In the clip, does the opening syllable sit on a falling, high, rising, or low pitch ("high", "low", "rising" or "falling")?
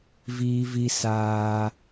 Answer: high